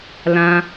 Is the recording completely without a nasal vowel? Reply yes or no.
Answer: no